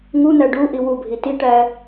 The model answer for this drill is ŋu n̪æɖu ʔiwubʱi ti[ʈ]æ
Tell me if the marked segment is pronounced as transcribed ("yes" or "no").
yes